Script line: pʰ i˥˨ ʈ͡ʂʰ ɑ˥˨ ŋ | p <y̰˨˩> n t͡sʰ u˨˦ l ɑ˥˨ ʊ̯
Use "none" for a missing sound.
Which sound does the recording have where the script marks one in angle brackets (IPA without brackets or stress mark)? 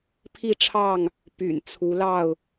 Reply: y̰˨˩